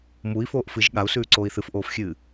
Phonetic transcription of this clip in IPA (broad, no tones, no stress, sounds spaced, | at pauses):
m u i̯ f oː ʔ f ɨ ʒ ɠ a u̯ s ʉː ǀ oː i̯ θ ɨ f ʔ oː f xʲ ɨː